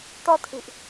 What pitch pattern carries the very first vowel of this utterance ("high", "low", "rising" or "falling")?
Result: high